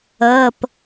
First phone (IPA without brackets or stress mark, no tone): ɤː